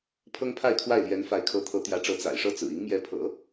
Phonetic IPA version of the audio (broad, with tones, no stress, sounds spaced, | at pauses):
pʰ ɤ˥ ŋ pʰ a˥˧ ɪ̯ kʰ w a˥˩ ɪ̯ l j ɛ˧˥ n f a˧˥ ɪ̯ kʰ ɤ˧˥ t̪ʰ ɤ˧˥ t̪ j ä˧˥ ʈ͡ʂ ɤ˧˥ t͡s a̰˨˩ ɪ̯ ʂ ɤ˥˩ t͡s ɹ̩˨˩ i˧˥ ŋ m j ɛ˧˥ pʰ ɤ̰˨˩˦